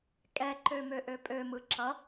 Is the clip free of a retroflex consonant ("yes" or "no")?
yes